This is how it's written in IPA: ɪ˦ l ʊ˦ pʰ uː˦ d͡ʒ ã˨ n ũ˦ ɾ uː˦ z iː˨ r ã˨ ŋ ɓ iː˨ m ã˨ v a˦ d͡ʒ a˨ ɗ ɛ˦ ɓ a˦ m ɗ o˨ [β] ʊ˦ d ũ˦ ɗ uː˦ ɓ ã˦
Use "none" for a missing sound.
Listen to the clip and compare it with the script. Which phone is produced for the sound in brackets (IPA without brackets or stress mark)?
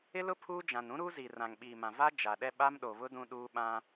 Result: β